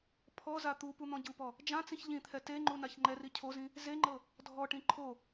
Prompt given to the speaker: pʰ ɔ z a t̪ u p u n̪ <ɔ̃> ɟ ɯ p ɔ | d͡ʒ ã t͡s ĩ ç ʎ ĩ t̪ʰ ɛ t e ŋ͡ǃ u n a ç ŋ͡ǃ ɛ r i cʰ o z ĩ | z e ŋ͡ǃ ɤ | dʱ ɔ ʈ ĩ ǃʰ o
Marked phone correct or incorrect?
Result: correct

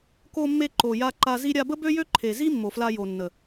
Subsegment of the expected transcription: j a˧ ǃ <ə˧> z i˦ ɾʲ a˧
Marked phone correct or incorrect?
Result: incorrect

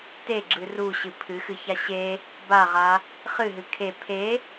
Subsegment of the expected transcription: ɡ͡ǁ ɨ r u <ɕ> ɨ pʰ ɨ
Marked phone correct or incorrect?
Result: correct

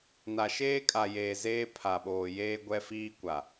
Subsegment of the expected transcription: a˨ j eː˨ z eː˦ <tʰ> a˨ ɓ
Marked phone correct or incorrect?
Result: incorrect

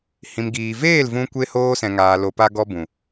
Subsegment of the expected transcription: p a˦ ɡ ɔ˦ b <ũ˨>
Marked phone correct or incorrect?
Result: correct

